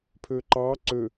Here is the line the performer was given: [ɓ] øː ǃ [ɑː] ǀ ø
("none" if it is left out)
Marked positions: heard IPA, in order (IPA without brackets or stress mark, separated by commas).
pʰ, ɑː